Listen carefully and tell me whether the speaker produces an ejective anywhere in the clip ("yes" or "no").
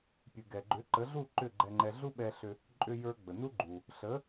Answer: yes